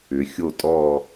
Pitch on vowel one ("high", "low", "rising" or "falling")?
rising